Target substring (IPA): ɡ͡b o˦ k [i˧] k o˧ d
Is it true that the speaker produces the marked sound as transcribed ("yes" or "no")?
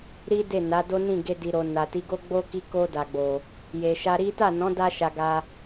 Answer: yes